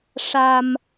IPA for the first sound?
ʂ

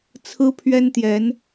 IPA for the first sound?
t͡sʰ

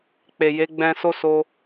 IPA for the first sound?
k͡p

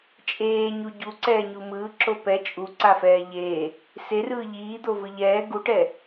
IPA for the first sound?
t͡ʃʼ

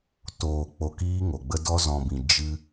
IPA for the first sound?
t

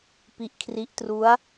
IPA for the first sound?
p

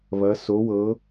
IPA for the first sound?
β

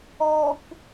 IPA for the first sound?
ɔ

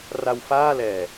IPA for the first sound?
r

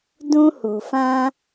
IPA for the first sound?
d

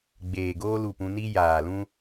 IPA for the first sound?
ɡ͡b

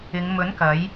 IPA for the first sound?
ɪ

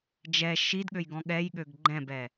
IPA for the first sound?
d͡ʒ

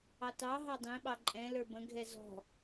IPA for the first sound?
ɑ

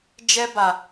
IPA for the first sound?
d͡ʒ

